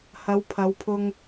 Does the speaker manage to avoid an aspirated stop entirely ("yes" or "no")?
no